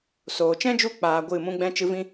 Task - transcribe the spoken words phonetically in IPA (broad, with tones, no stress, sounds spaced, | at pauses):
s oː˨ t͡ʃ ɛ̃˦ d͡ʒ u˦˨ k͡p aː˧ ɡʷ ɨ˦˨ m ũ˦ ɡ͡b ɛ̃˦ t͡ʃ ɨ˦ v ĩ˦